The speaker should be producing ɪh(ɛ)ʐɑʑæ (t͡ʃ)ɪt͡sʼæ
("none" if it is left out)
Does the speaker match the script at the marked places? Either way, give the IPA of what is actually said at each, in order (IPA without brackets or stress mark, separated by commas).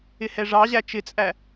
ɛ, t͡ʃ